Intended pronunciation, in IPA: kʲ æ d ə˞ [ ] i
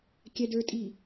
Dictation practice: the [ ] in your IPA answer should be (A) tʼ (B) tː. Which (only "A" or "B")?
A